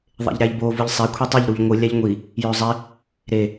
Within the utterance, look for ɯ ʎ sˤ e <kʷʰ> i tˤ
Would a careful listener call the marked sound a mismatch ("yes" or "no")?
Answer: no